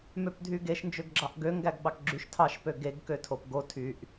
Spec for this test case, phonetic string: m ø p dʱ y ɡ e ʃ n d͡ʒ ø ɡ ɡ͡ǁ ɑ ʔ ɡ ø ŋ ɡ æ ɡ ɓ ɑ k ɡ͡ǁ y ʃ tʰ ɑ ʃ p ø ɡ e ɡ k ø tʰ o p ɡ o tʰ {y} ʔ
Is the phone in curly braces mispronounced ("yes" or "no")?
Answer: no